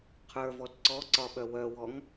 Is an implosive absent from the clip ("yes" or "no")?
no